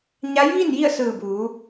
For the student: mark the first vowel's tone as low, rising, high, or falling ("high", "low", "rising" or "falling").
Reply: rising